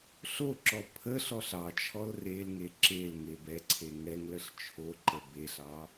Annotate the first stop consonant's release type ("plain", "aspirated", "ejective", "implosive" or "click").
click